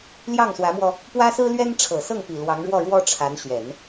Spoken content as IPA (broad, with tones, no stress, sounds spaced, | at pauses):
l j ɑ˥˩ ŋ s w ä˧˥ m w ɔ˧ | p w ä˥ s ɹ̩˥ l ɥ ɛ˥ n ʈ͡ʂʰ ɤ˨˩ s ɤ˥˩ ŋ p i˨˩ l w ɑ˧˥ ŋ ɻ w ɔ˥˩ ɻ w ɔ˥ ʈ͡ʂʰ a˧˥ n ɕ ɥ ɛ˨˩˦ n